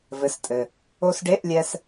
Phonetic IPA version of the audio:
vɘ˧˥˧stʼɘ˧ | o˧sɖe˧˥˧ʔlʲɛ˧s

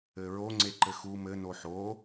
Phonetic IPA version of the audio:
ɘɹo ŋ͡ǀeǃɘxu mɘ noħo

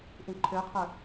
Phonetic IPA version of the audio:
ʔĩǃʰøqʰə˞

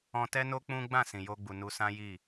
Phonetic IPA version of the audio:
ɔ̃˧tɛ˦no˦ k͡pũ˦ ɡ͡bã˦˨sĩ˨jo˧ɡ͡bu˨ nu˧sã˦ji˦˨

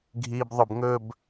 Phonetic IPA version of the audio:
ɡʱiːbðˤʊbŋɵb

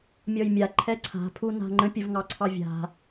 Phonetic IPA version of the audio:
mʲɔjmʲa ǃʰɛǀʰa̤ pʰuna̤ŋ͡ǃə̃ pʲəvŋɑǀʰɑvʲa̤

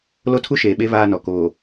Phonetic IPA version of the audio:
lo˦tʰu˦ʃeː˨ɓe˦ βaː˦nɔ˨ koː˨

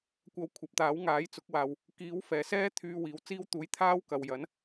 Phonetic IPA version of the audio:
kʷɐ˧wkʷʰɐ˨p̚t̪aː˨˥wŋaː˨˥j t͡sʊ˨˥k̚waː˨w | kiː˨˥w fɛː˨ sɛː˥ t̪ʰyː˧ wiː˨˥wt͡siː˥wt̪uː˧j t̪ʰaː˥wkɐ˨wjɐ˨˥n

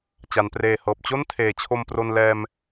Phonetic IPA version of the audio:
t͡ɕa˩˦npreː˨˩hɤː˨˩p̚ t͡ɕo˥˩ntʰeː˩˦ t͡ɕʰo˧mpro˧n lɛː˧m

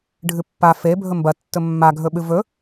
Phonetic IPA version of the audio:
ɖʱɨpːa fe bʱɵmbɐ tːɵmːa ɡʱɵɓɨvɵ

